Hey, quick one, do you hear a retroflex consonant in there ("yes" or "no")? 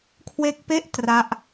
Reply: no